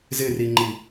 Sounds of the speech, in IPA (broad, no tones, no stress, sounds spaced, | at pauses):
z ɪ r i ŋ͡ǃ i